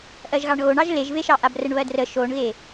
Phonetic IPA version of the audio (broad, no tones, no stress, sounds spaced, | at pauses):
ʔ ɜ ʒ ɣ ɑ ɳ ɣ o ɳ ɑ ʒ l e ʒ v e ʃ ɑ ʔ a b r ə ɳ β ɜ d r ə ʃ o ɳ ɣ e